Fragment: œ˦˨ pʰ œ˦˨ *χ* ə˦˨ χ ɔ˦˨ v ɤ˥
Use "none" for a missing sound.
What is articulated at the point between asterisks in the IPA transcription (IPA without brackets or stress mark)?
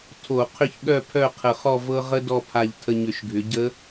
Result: qʰ